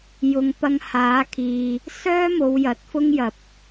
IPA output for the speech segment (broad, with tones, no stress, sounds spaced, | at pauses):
j ʊ˨˧ ŋ p ɐ˧ ŋ h aː˨˥ kʰ iː˨ | s œː˥ m o˨˧ w j ɐ˨ t̚ f ʊ˥ ŋ j ɐ˨˥ p̚